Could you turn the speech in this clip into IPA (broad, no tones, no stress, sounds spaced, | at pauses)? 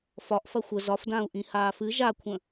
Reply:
f ɒ ʔ f ɐ xʷ ə z ɒ f d ãː u̯ ʔ ĩ h aː f ɨ ʒ a kʷʰ ə̃